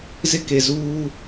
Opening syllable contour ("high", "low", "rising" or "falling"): high